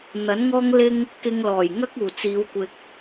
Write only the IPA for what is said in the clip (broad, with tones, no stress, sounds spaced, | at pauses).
n̪ ɐ˨˥ n ŋ ɔː˥ ŋ l ɪ˥ ŋ | k ɪ˧ ŋ l ɔː˨˩ j ŋ ɐ˥ k̚ uː˨˩ t͡s iː˨˧ w kʷ ɪ˧ k̚